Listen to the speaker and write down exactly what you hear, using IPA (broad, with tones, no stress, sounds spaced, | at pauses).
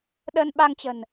ɗ ə˧ n ɓ a˧ ŋ t͡ɕ ə̤˨˩ n